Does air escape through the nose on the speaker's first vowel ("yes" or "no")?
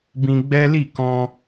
yes